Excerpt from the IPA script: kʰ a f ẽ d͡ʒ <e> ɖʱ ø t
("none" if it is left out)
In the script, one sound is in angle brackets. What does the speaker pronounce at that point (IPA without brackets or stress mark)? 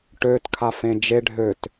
e